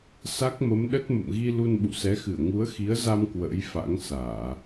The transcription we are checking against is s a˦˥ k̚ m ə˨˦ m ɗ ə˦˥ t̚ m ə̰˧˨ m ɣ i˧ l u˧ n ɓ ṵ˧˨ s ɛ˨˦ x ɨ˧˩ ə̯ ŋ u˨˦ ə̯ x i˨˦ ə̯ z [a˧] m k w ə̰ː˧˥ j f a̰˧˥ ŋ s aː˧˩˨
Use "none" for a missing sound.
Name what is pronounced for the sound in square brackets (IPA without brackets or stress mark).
a˧